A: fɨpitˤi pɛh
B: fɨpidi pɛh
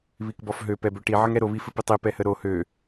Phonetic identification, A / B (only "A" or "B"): A